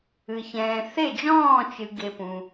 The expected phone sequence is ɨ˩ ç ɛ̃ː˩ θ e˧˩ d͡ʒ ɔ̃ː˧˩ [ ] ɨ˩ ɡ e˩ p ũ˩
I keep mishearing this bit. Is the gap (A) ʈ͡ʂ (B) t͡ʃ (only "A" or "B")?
B